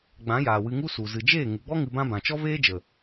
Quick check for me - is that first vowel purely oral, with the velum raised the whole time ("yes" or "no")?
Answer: no